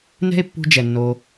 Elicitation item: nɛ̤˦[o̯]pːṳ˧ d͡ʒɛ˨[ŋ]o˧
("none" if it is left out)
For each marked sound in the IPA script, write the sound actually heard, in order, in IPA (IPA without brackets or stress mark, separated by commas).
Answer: e̯, nː